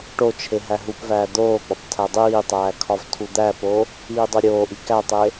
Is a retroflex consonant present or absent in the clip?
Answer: present